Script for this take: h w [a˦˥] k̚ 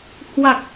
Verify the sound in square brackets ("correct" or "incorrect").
incorrect